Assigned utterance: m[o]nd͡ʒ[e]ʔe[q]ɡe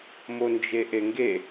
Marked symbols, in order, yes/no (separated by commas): yes, yes, no